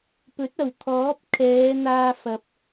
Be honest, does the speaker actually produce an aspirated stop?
yes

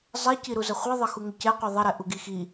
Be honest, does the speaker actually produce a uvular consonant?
yes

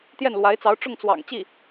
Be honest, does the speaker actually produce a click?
no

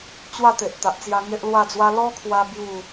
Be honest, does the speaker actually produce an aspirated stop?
yes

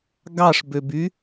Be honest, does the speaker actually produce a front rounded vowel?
yes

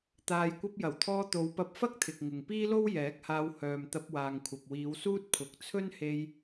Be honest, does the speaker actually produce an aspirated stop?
yes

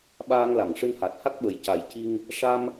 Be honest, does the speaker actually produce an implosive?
yes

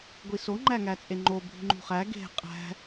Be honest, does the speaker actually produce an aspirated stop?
no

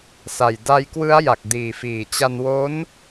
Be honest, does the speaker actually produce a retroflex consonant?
no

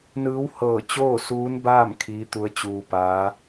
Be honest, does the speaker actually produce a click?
no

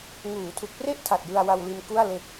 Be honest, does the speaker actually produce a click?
no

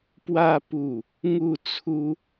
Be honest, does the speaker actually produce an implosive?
no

